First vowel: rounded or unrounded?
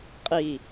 unrounded